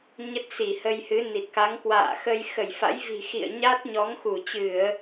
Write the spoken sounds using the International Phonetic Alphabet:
ɲ ə˦˥ t̚ s i˧˩ h ə˧ j h ɨ˨˦ n i˨˩ t̚ k a˨˦ ŋ k w a̰ː˧˨ x ə˧ j x ə˧˩ j f a̰˧˥ j v i̤˨˩ x ḭ˧˨ ə̯ ɲ a˦˥ t̚ ɲ ɔ˨˦ ŋ x u˧˩ t͡ɕ ɨ˧˩˨ ə̯

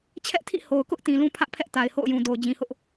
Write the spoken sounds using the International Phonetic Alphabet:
t͡ɕʰ ɛ˦ ʔ tʰ ḭ˦˨ h o˨ ʊ̯ k ʊ˦ ʔ t ĩ˨ l ũ˦ pʰ ä˦ ʔ pʰ ɛ˦ ʔ t a˨ ɪ̯ h o̰˦˨ ʊ̯ j ũ˨ d o˨ ʊ̯ d͡ʑ ĩ˨ h ʊ˦ ʔ

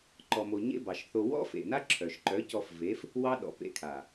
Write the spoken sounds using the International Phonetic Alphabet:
ǃ ɔ˨ m o˨ ɲ ḛ˦ b ɑ˨ ʃ θ o˧ w ɔ̰˦ f ḛ˨ n a˦ ǁʰ œ˨ ʃ ǃ œ˨˦ c ɔ˧ f v e˨˦ f | w ɑ˦ ɗ ɔ̰˨ p ḛ˧ kʰ a˨

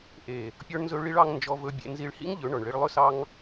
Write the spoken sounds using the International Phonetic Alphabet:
ʔ e˨ | pʲ ɔ˧ ɳ n z ɵ˧ ɭ i˧ ɭ ɑ˧ ŋ n d͡ʒ ɔ˧ v ɵ˧ bʲ ḛ˧ n z i˧ ɭ h ḭ˦ ŋ ʎ ɵ˨˦ ɳ ɔ˨ ɳ ɭ i˧ ɭ lˠ ɵ˦ s ɑ˦ ŋ

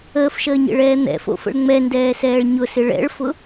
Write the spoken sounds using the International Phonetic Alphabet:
əː f ʃ əː ɲ ḛ ɭ ɛː n̪ ɛ̰ f o̰ f ə̰ ɭ ŋ͡m ɛ n d ɛː s ɛː ɭ ɲ ʊ s ɪ ɭ ɛ̰ ɭ f ʊ

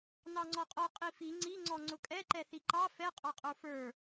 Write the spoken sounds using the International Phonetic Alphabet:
n ɑ ŋ͡ǀ ɔ qʼ ɔ qʼ i f i ŋ͡ǀ i ŋ͡ǀ ɔ ŋ͡ǀ ʊ kʼ ɛ ǃ ɛ θ i ǃ ɑ f ɛ qʼ ɑ qʼ ə˞ f ə˞

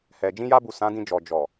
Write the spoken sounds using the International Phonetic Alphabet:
h ɛ˨ d͡ʒ ĩ˧ j a˧ b u˨ s ã˨˦ d ĩ˧ d͡ʒ ɔ˨ d͡ʒ ɔ˨

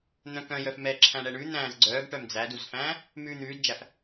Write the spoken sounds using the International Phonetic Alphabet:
n̪ œ̃ k œ̃ j œ f m ɛː ǁʰ æ̃ ɳ ɛ ɳ ʉ n̪ æ̃ː z ɡ͡ǀ œː ɡ ʈ œ m d͡z æ d u z f æ̃ː | m ʉː n̪ ʉː d d͡ʒ æ f

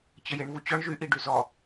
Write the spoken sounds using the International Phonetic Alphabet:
t͡ɕ ə j e ɳ v u t͡ɕ ɔ ɳ ʒ y ʔ i ɖ y z ɔ

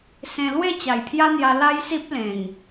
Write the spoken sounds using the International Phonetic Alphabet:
s ẽ˧ l w e˥˧ t͡ɕ a˨˩ j pʰ j a˦ n̪ j a˧ l a˦ j s i˦ p̚ l ẽ˨˩ ŋ

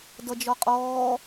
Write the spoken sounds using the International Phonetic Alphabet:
d ʌ d͡ʒ ɔ qʼ ɔː

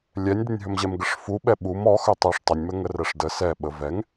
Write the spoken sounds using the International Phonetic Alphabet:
lʲ ɛ nʲ d ɪ nʲ ɦ ɵ m ʑ ɛ m ɡ ə ʂ f u ɓ ɛ ɓ u m ɔ x ɵ tˤ ɛ ʂ tˤ ə nʲ m ə ŋ ə r ɛ ʂ d ə s ɛ ɓ ə v ɛ ŋ

